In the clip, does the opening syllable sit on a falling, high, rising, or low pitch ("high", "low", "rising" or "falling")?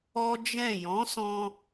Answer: high